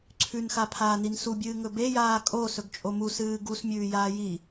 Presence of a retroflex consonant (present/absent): absent